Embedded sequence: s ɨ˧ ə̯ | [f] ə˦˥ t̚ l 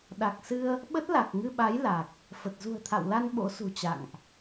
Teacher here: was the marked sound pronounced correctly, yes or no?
no